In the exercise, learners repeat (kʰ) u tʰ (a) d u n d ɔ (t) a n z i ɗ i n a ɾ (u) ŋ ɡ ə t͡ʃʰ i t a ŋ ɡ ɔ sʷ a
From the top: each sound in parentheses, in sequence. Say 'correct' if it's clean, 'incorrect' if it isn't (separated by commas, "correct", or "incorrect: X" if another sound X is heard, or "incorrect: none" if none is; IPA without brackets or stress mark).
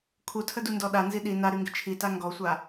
correct, incorrect: ə, incorrect: ɗ, incorrect: y